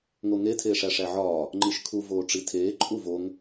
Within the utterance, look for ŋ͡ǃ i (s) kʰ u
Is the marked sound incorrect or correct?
incorrect